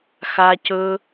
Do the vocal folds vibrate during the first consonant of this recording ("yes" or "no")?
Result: no